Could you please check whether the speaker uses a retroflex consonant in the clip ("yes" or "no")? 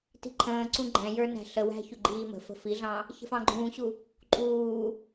no